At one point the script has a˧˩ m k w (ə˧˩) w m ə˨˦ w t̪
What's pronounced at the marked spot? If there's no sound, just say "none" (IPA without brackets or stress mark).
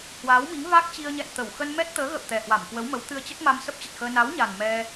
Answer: ə˨˦